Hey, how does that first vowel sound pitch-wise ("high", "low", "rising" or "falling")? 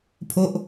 high